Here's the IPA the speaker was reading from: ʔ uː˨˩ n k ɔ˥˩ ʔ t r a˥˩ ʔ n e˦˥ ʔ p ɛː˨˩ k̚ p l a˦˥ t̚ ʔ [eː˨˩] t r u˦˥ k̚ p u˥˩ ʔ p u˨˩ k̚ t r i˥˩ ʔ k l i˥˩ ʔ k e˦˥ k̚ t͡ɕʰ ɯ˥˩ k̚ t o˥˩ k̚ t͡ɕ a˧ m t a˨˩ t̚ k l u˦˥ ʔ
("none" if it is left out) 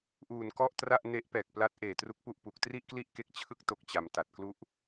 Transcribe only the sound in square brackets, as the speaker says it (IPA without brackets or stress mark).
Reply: eː˨˩